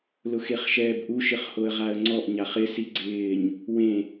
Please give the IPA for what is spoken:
l ʊ x e χ ʃ ɛː b ʔ u ʃ ɪ χ h o ə̯ ʁ a ə̯ ŋ͡ǀ ɔ ʔ ɲ a χ ɪ s i ɡ͡ǀ ɪː ɲ | w ẽ

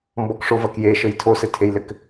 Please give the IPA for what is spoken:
m b ɔ k ʂ o v ɐ k j e ʃ ɘ j tʰ o s ɘ tʰ e j l ɘ k

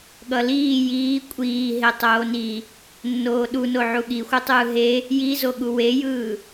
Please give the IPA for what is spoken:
ɠ ʌ l iː j iː kʷʼ iː ɦ e tˤ oː n i | nː oː ɗ u n o ʕ u ɠ i xʷ ɯ tˤ ɯː ɦ e | j i z o ɠ u w e j ɯː

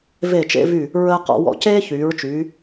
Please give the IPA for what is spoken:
v e˧˩ t͡ʃ ḛ˧ v y˧˩ | ɹ əː˧ q ɔ̰˩˧ w ɔ̰˧˩ c eː˥ ç yː˩˧ ɹ t͡ʃ yː˩˧

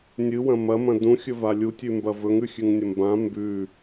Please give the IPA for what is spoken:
nʲ ɨ w ɐ̃ m ɐ m ɐ̃ d ũ xʲ ɵ v a lʲ u tʲ ʉ m b ɐ v ɵ ŋ ʉ xʲ ʉ ŋ nʲ ɐ m b ã m b ʉ

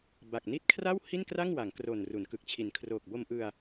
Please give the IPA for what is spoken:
b a˨˩ k̚ n i˦˥ t̚ kʰ r a˥˩ w h i˥˩ n k r a˥˩ ŋ w a˩˦ ŋ k r o˨˩ n r u˩˦ n k ɯ˨˩ k̚ t͡ɕʰ i˨˩ n kʰ r oː˨˩ k̚ b o˧ m ʔ ɯ˧ a̯

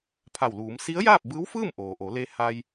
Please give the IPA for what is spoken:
pʰ a˧˩ w l uː˩˧ m s i˧˥ ə̯ j aː˥˨ p̚ b ɯː˧˥ w f ɯː˥˨ m ʔ oː˩ ʔ o˩˧ l e˧ h a˧ j

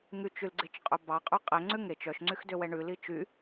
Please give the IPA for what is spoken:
ŋ y t͡ʃ y l ɡ͡ǀ e t͡ʃ qʼ ɵ b ɑ qʼ ø qʼ ɛ ŋ͡ǀ ʉ ŋ e t͡ʃ œ ʃ ŋ͡ǀ y x d ø w ɛ ɳ ʉ l i t͡ʃ y

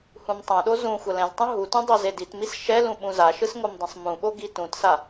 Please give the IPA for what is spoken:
h ũ m tˤ ɛ̃ ɗ o z ũ xʷ ʌ l ɛ̃ z tˤ ũ ɦ u t ũ dˤ o z e d i t m i s ʃ ɛ l ũ ɓ ũ z a ʃ ɯ s ŋ o m dˤ ɛ̃ sˤ m ũ ɓ o ɡ i t ũ t s a

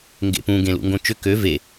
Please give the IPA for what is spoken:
ŋ ɡ ḛ p ũ ɡ ẽ l ṵ ŋ ɡ õ t͡ʃ ʏ k ø v e

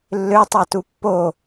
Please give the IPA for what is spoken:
lː ø tˤ ɑ t u pː o

